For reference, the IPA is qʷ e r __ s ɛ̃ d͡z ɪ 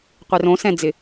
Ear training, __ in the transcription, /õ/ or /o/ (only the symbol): õ